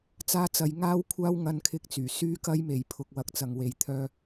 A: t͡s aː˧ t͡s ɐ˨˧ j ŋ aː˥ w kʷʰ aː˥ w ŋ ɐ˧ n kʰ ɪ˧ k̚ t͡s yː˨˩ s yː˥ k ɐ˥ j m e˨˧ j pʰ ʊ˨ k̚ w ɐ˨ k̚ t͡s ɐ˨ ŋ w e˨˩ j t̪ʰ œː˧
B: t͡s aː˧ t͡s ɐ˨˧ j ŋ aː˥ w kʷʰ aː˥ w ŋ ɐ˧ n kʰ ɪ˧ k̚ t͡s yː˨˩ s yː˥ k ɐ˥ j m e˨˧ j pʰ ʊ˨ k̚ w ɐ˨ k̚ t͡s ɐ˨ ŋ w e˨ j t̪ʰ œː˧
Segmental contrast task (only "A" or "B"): B